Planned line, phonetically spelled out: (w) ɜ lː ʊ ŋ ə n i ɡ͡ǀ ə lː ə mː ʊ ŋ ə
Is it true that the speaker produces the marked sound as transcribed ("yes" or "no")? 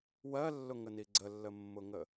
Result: yes